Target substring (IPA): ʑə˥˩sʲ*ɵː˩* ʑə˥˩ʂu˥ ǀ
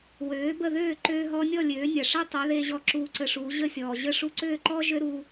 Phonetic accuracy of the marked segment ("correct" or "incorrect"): incorrect